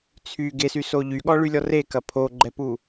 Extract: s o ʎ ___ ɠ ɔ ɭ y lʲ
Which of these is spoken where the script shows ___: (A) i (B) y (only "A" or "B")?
B